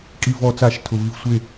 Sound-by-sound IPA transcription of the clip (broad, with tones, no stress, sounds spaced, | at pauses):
kʼ i˧˩ v ɔ˧˩ t͡s a˧˩˧ ʃ tʰ ʊ˩ v i˧˩ v sʷ e˧˩